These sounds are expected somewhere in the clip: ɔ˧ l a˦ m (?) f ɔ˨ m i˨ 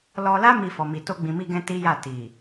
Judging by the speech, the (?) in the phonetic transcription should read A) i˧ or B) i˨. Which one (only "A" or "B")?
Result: A